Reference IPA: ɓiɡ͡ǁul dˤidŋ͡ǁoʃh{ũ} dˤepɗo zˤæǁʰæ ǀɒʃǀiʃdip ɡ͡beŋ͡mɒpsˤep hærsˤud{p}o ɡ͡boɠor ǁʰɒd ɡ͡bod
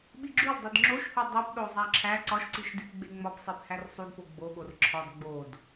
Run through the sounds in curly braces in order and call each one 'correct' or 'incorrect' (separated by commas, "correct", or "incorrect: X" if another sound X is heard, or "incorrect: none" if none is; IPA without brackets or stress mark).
incorrect: u, correct